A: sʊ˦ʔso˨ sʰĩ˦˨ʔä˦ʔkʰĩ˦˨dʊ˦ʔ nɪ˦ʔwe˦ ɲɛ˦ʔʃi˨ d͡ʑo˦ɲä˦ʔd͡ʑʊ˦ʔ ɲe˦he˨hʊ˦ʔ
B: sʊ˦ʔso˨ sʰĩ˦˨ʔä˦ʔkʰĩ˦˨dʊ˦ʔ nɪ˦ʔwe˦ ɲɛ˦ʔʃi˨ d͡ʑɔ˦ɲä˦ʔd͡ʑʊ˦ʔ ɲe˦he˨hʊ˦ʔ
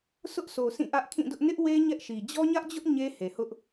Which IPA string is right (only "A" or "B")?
B